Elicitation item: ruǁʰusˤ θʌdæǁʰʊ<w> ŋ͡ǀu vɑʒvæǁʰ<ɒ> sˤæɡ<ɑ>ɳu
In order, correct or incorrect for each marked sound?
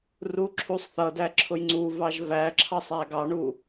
incorrect, incorrect, correct

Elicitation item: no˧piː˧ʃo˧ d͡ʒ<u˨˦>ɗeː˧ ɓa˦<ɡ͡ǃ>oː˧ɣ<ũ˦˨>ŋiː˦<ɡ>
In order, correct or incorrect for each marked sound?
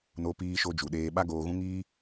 incorrect, incorrect, incorrect, incorrect

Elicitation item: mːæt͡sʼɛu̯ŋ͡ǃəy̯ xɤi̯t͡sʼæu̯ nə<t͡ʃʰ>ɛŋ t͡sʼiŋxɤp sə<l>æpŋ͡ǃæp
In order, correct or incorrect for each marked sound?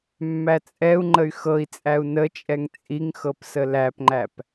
incorrect, correct

